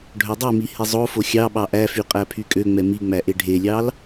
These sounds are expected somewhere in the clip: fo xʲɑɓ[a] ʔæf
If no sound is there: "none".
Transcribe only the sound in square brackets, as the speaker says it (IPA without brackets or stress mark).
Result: ɑ